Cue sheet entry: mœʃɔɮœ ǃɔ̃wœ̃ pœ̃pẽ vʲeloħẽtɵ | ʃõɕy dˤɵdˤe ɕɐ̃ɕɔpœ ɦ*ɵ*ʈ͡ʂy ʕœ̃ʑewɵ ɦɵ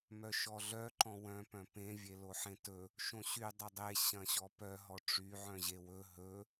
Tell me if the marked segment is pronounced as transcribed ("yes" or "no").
no